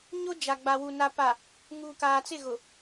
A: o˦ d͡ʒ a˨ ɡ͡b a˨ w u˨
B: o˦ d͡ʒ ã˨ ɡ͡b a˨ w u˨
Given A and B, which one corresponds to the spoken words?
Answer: A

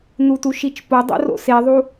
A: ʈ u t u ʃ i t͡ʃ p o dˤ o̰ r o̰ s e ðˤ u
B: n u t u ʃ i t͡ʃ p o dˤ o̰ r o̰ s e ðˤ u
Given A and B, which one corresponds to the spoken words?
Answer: B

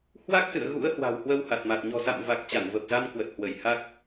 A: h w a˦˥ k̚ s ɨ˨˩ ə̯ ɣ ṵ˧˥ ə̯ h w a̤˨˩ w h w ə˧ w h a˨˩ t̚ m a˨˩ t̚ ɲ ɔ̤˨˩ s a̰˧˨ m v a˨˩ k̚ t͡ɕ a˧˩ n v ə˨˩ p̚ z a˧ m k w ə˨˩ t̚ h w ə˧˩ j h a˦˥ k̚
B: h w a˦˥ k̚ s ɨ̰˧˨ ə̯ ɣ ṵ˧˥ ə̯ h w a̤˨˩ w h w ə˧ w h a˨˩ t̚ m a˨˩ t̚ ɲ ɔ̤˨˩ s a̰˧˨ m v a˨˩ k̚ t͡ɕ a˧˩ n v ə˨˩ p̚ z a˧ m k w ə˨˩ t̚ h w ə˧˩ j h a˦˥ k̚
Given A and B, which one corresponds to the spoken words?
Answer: B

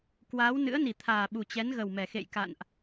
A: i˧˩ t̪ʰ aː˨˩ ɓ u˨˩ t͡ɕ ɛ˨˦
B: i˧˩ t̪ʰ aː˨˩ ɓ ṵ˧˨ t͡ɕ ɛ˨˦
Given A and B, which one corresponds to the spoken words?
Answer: A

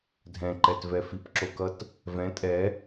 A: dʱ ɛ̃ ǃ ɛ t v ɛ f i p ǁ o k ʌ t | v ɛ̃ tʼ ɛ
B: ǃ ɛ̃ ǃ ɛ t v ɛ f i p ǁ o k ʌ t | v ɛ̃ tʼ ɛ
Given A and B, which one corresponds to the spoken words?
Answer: A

